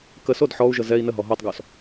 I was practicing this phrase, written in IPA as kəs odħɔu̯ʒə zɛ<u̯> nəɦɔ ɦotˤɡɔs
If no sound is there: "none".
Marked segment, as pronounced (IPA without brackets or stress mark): i̯